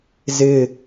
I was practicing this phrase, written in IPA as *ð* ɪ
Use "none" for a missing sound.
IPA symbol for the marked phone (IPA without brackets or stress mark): z